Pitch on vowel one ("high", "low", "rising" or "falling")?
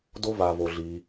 high